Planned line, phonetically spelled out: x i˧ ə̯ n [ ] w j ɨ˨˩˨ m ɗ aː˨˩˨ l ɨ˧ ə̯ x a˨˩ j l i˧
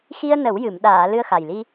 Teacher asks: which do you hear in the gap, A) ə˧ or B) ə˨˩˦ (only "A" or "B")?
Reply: B